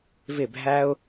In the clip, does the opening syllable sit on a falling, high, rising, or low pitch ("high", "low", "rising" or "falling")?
falling